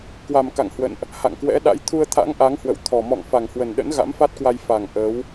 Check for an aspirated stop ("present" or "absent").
present